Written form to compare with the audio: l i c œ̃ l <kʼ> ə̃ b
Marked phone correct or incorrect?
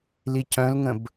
incorrect